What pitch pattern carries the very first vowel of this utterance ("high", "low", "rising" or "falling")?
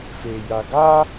low